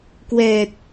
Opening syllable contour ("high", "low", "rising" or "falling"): low